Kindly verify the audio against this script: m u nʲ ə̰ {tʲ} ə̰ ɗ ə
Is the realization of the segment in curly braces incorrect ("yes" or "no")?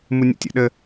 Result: no